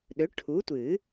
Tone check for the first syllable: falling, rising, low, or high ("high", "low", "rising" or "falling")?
rising